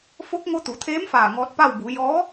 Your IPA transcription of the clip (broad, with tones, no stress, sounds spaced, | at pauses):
f o˧˥ k̚ ŋ o˧ t̪ u˩˧ t̪ʰ eː˧˥ m f aː˧˩ ŋ ɔː˧ t̚ p a˥˨ w b u˩˧ j ɔː˧˥